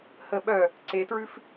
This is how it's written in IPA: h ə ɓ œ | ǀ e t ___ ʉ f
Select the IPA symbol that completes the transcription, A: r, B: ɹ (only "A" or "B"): B